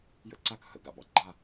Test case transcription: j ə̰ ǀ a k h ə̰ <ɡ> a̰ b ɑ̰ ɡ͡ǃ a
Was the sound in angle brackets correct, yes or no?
yes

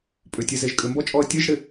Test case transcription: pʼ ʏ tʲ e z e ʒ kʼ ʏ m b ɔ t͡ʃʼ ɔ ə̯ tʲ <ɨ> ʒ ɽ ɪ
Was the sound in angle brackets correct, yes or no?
yes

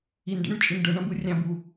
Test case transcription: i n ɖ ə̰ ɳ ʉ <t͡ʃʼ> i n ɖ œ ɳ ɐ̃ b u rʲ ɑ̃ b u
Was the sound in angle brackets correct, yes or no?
yes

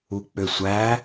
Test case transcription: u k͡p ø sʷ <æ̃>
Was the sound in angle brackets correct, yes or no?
no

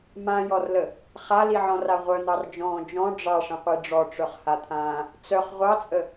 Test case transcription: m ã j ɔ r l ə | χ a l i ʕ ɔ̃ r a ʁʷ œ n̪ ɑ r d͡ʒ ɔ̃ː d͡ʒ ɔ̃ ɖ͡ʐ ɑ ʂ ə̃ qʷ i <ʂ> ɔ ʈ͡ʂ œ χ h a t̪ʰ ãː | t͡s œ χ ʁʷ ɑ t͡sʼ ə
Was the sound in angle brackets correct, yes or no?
no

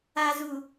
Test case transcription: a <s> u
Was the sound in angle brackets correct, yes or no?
no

